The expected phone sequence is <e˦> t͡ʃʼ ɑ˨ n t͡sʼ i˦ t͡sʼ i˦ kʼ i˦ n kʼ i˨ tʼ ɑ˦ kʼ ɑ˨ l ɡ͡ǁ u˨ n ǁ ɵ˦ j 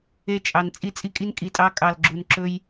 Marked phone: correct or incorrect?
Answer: incorrect: e˦˨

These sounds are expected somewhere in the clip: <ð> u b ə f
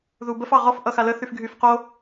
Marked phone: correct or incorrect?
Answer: correct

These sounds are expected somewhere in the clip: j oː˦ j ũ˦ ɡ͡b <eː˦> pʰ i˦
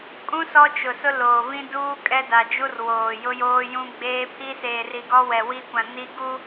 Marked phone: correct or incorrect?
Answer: correct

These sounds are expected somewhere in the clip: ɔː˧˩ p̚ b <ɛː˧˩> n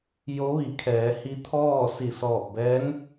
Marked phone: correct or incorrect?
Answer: incorrect: ɛː˧˥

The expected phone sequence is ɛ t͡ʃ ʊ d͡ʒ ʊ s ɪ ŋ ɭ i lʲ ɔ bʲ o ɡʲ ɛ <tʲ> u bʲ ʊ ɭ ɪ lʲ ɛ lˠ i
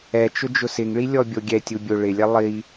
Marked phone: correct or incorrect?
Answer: correct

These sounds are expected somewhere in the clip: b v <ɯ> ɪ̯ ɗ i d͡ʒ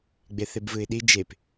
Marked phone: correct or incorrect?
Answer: correct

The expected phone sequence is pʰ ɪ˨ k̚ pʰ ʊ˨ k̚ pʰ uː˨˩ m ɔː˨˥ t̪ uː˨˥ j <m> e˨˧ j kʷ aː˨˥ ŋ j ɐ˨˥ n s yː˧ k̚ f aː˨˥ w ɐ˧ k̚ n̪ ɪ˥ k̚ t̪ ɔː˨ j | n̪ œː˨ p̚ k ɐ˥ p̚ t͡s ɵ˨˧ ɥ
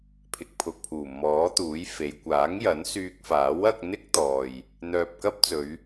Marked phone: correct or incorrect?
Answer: incorrect: f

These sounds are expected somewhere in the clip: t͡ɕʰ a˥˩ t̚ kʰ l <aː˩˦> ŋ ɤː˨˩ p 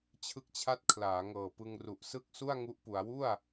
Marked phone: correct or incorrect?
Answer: correct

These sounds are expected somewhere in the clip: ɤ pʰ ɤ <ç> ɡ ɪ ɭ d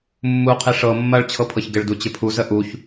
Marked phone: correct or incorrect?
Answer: correct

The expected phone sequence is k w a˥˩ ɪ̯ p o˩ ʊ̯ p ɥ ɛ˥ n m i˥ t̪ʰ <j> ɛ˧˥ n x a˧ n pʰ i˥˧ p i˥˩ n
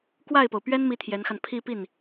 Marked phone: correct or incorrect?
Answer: correct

